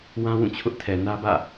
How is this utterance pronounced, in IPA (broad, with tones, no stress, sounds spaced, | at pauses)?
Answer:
w ã˦ w ũ˦˨ t͡ɕʰ ʊ˦ ʔ tʰ ɛ˨ n ä˦ b ä̰˦˨